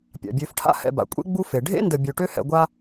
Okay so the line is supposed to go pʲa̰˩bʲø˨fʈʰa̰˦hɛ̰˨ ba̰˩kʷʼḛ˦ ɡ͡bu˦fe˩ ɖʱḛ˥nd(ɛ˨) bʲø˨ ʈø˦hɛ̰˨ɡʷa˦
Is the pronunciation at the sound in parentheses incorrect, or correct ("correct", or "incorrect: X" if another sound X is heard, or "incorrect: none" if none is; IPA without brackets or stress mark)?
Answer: incorrect: ə˨